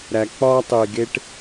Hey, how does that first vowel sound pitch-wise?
low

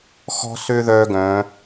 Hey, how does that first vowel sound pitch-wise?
high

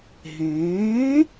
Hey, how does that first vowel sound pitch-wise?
rising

